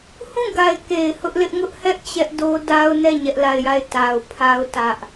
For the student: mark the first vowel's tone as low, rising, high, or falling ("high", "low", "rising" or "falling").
falling